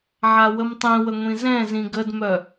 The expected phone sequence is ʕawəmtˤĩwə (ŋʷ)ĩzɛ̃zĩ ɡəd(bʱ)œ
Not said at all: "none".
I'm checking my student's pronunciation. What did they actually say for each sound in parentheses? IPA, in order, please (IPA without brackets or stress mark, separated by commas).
ŋʷ, m